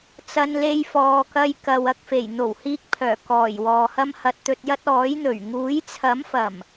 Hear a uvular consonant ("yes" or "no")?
no